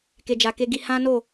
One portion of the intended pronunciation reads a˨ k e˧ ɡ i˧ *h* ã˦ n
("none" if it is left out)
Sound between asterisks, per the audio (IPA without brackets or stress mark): h